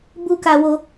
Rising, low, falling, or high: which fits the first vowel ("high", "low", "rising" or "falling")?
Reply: high